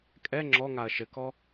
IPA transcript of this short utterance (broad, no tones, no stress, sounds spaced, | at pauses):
kʼ ɛ ŋ͡ǁ ɔ ŋ a ɐ̯ ʃ ɘ k ɔ